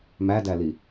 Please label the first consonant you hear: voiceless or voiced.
voiced